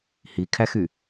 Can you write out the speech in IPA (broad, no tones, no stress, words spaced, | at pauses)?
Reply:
hikʰæxy